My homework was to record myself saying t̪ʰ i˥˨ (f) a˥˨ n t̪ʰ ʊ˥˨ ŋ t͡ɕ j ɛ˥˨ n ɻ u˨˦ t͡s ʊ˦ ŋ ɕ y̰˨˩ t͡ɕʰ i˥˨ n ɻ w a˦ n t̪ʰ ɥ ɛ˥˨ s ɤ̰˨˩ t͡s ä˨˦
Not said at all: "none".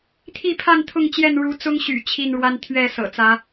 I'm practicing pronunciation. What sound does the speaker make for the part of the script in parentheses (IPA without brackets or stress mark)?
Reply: pʰ